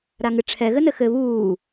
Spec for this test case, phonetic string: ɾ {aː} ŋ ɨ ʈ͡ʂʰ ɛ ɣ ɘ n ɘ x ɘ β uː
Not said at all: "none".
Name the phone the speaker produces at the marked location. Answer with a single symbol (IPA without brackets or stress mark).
a